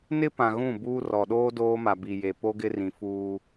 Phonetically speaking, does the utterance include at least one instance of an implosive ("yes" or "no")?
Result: yes